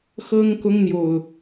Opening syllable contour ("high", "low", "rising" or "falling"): high